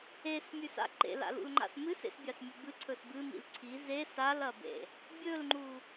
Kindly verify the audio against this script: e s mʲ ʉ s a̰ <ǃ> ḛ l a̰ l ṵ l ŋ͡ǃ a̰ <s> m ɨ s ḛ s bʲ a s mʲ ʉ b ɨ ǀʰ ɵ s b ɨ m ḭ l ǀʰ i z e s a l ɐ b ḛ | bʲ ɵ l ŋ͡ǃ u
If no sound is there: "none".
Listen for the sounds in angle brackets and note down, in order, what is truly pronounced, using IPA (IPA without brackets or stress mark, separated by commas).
ǃ, s